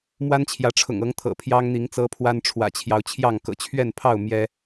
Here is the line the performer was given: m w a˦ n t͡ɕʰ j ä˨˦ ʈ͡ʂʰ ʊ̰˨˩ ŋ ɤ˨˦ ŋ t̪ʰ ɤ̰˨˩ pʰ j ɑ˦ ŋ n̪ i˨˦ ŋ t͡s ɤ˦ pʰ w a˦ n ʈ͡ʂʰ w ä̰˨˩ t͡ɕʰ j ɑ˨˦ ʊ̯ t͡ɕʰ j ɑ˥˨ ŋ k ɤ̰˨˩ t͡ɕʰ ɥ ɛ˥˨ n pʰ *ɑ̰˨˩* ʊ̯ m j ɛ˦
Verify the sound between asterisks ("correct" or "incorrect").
incorrect